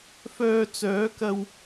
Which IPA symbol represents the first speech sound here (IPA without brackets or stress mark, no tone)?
f